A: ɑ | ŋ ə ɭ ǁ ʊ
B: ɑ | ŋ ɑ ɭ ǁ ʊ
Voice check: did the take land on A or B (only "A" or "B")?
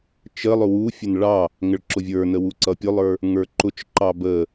A